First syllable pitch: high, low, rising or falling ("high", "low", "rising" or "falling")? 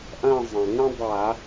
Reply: falling